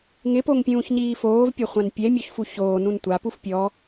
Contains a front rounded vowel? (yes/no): no